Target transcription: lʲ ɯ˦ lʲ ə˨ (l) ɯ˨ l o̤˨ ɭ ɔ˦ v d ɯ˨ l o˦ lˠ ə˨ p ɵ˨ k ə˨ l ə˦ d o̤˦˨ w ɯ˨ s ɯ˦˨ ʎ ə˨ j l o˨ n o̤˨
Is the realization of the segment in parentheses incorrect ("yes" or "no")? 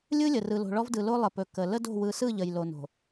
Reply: yes